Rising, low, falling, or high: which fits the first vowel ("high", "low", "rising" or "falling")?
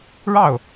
falling